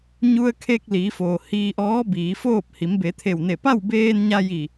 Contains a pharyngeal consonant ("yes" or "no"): no